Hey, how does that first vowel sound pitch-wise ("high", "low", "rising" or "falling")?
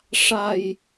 low